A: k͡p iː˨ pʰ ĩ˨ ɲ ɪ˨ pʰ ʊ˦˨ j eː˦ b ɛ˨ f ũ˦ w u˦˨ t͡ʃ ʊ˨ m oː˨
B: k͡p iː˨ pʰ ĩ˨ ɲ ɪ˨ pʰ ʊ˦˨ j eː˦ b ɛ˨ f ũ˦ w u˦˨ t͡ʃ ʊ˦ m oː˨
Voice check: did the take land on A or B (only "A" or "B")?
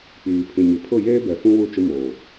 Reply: B